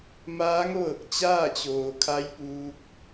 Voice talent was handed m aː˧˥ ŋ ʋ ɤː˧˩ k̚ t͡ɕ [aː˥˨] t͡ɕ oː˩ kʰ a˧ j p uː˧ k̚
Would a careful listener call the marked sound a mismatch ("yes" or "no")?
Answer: no